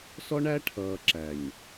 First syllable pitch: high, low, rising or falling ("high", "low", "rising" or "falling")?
high